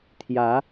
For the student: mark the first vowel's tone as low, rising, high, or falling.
rising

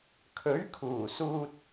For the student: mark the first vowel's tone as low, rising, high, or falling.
rising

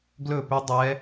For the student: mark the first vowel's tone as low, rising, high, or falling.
falling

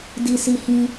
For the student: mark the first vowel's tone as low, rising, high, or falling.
low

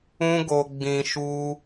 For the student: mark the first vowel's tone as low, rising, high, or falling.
high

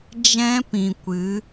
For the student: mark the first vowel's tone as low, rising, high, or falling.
high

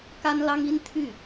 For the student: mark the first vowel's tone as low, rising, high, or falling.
high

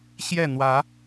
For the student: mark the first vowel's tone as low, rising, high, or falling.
falling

